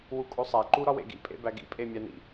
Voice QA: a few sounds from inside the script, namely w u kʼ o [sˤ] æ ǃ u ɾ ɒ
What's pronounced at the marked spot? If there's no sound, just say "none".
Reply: sˤ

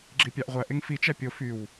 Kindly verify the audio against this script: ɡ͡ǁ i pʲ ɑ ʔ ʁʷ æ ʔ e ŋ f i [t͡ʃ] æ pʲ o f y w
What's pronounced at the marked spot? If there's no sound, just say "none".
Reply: t͡ʃ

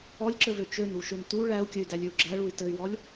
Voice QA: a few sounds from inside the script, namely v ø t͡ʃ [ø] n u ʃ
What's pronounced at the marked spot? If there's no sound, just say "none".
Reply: ø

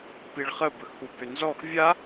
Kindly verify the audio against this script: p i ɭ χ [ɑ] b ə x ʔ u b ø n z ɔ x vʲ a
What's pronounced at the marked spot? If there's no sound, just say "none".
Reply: ə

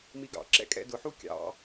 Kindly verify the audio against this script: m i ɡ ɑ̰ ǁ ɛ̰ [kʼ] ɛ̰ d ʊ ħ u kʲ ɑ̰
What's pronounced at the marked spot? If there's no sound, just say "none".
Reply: kʼ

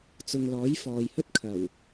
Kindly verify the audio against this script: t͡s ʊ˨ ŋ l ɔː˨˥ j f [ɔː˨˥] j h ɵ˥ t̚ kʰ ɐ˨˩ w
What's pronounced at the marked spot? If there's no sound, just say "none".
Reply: ɔː˨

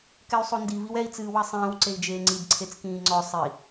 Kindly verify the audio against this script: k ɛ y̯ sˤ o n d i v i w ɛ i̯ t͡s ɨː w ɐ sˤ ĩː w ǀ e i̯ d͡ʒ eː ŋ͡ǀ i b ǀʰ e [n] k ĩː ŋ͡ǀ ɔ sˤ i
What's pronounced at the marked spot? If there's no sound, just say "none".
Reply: t͡s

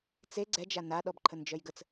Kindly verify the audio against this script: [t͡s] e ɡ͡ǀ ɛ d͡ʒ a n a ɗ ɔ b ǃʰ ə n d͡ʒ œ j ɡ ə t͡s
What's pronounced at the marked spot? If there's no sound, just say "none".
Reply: t͡s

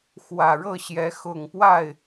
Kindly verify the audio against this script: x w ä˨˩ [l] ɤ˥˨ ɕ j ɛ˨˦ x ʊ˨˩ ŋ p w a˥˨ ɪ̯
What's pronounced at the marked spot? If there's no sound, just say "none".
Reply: ɻ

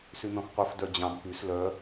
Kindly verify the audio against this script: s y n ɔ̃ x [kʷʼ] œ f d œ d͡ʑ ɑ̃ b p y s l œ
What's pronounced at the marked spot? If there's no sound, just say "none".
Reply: qʷ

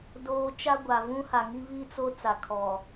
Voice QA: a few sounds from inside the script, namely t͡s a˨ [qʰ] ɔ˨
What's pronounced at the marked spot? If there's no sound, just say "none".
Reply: kʰ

